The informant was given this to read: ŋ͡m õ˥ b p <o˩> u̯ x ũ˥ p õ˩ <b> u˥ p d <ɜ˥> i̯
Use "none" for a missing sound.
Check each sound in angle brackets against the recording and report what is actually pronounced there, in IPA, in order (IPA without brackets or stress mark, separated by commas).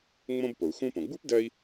o˩, ɡ͡b, ɜ˥